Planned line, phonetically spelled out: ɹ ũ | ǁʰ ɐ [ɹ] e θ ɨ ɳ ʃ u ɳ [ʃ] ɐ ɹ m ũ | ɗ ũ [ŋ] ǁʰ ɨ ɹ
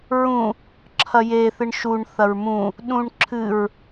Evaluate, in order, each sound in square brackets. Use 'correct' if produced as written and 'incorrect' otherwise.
incorrect: j, incorrect: θ, incorrect: ɳ

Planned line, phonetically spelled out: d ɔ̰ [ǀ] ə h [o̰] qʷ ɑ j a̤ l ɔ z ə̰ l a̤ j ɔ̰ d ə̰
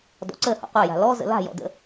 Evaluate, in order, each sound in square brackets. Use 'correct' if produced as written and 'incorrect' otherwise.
correct, incorrect: ɔ̰

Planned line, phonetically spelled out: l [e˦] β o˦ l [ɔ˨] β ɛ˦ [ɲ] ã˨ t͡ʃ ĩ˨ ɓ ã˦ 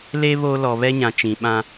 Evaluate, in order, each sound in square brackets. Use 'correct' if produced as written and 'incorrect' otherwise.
correct, correct, correct

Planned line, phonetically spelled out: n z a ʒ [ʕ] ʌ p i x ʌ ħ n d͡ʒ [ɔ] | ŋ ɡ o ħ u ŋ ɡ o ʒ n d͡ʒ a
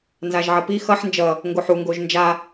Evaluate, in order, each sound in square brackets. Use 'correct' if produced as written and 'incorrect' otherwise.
correct, incorrect: ʌ

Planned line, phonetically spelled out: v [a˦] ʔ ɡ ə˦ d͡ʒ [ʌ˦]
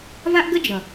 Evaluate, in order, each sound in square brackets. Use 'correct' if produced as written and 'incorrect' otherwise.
correct, incorrect: ʌ˨

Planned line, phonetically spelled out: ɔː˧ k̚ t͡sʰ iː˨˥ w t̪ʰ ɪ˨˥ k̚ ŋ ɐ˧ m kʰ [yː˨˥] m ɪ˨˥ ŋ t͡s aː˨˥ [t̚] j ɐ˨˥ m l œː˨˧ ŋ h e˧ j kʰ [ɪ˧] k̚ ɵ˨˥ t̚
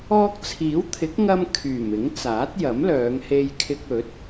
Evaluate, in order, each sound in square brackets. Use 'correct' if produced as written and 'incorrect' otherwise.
incorrect: yː˨˩, correct, correct

